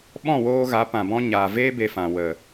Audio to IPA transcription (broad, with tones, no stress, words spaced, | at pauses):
ɓɔ̃˦˨woː˧ɣa˨˦ pã˨bɔ̃˧ ɲaː˨veː˦ be˧fã˨ wə˨